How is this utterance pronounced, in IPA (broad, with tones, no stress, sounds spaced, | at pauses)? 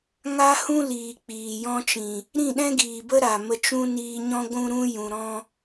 ŋ a˦ h ũ˦ l iː˨ k͡p iː˨ j ɔ̃˧ t͡ʃ ĩ˨ | ɾ ĩ˦˨ ɗ ɛ̃˦ ɡ iː˨ b ə˦ ɾ a˨ m ə˧ t͡ʃ ũ˦ n iː˧ ɲ ɔ̃˦ ɡʷ ũ˦ ɾ ũ˦ j ũ˨ ɾ ɔ̃˧